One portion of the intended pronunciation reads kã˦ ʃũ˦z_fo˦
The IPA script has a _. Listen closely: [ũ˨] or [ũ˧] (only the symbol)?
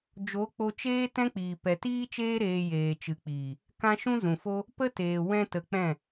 ũ˨